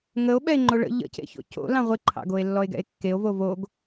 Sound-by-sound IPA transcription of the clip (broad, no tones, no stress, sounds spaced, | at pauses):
ŋ ə o̯ ɓ ɛ e̯ ŋ͡ǃ o ɭ ə̰ ʎ ə̰ c ḛ ç o̰ c o̰ l ɑ̃ ʁʷ ɪ ǃʰ ɑ̰ ɡ o e̯ lː ɔ e̯ ɡ ɛ̰ e̯ kː e o̯ v o v o ɡ